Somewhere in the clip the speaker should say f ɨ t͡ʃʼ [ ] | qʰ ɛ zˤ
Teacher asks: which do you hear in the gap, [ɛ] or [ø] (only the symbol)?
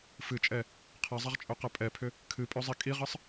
ɛ